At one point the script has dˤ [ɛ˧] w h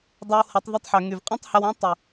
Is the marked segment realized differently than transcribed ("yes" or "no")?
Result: no